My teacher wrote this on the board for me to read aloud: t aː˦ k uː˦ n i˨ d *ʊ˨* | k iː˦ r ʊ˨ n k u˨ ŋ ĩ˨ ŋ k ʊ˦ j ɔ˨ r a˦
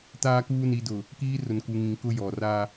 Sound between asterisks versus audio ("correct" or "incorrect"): correct